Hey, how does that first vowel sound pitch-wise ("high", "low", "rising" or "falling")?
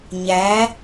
rising